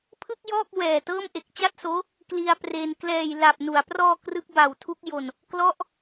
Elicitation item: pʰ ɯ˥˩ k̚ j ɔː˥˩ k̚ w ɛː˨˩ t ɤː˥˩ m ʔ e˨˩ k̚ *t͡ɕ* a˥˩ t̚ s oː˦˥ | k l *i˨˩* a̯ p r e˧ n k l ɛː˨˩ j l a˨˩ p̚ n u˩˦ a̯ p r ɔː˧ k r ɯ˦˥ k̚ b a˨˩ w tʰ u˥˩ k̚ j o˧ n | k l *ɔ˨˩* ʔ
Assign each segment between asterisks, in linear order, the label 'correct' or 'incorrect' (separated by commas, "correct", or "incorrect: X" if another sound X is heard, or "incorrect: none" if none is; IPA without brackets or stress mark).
correct, incorrect: i˧, incorrect: ɔ˥˩